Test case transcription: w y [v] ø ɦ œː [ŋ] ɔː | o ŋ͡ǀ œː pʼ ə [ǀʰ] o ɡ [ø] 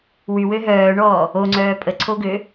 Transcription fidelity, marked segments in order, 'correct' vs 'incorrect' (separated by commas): incorrect, incorrect, correct, correct